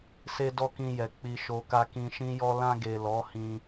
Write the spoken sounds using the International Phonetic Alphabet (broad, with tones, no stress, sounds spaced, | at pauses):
s e˦ d ɔ˦ k ĩ˧ j ɛ˨ k͡p i˧ ʃ o˧ k a˧ k ĩ˧ ʃ ĩ˦ j ɔ˦ l ã˧ ɡ e˨ l ɔ˨˦ h ĩ˧